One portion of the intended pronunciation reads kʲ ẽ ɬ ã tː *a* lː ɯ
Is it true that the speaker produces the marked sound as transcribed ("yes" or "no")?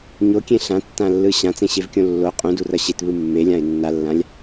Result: no